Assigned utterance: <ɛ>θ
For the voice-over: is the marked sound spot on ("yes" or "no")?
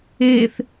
no